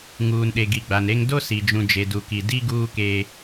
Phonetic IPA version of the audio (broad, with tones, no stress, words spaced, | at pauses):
ŋuː˨nɗe˨ ɡi˨ɡ͡ba˨nɾe˦ŋ do˦si˨ d͡ʒũ˨ d͡ʒe˨du˨ki˨ di˦ ɡuː˦ keː˦